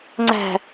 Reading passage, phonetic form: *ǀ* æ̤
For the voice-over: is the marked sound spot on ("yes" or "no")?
no